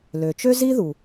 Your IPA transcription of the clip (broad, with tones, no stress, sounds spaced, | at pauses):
l ø˩ t͡ʃ ø˥ z i˥ ð u˩